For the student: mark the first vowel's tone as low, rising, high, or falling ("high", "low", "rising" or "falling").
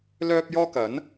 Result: high